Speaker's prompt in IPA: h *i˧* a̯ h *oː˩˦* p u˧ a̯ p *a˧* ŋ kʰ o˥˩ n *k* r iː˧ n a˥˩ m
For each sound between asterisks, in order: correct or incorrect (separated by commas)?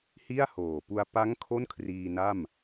incorrect, incorrect, incorrect, incorrect